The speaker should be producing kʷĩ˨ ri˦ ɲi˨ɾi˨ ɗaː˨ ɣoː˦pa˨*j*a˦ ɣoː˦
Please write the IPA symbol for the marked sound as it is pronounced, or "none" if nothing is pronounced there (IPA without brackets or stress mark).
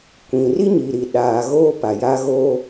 j